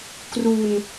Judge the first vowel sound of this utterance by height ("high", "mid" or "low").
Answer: high